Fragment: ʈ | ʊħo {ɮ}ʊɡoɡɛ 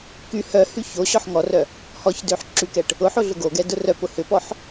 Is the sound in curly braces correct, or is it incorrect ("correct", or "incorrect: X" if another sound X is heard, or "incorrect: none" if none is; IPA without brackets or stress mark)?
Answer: correct